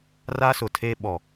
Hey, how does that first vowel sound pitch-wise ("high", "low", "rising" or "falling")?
high